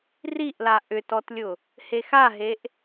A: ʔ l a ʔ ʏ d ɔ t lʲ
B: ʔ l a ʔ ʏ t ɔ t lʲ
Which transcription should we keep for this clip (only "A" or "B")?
B